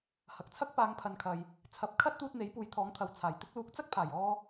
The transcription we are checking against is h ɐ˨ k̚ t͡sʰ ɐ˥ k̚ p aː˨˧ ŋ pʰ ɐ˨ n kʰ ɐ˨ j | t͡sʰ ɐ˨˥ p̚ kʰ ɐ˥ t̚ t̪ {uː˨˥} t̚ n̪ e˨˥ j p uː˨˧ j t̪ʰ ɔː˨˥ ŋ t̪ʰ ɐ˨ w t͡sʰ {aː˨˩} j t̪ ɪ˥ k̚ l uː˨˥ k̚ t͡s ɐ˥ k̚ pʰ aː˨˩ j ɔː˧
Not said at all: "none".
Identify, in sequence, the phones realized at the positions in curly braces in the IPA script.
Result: uː˧, aː˨˩

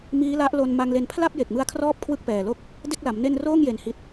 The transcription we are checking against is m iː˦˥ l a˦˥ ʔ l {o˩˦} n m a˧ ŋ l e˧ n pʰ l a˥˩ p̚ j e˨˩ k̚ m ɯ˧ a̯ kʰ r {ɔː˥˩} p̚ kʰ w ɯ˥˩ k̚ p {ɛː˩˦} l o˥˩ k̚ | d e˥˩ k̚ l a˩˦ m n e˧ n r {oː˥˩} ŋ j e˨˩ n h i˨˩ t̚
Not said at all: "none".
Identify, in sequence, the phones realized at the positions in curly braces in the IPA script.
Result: o˧, ɔː˥˩, ɛː˨˩, oː˥˩

